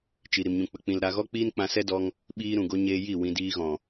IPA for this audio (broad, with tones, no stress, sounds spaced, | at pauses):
t͡ʃ i˨ ɾ i˨ m ɲ ũ˨ k͡p ə˨ k͡p ĩ˨ l ɾ a˧ ɣ ɔ˦ k͡p iː˦ n k͡p ã˧ s ɛ˦ d ɔ˧ ŋ | ɓ iː˧ ɾ ũ˨ ɡ o˧ ɲ eː˧ j i˦˨ w ĩ˧ d iː˧ ɣ ɔ̃˨